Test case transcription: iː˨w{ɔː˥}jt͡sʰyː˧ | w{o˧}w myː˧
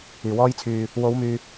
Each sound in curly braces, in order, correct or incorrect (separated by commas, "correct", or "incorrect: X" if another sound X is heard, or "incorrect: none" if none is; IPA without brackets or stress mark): correct, incorrect: o˨˧